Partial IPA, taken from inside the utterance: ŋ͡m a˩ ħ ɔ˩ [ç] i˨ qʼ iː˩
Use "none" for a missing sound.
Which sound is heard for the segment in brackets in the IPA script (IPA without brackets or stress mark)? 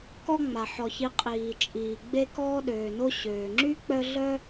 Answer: ç